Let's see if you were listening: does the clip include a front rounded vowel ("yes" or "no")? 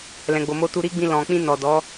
no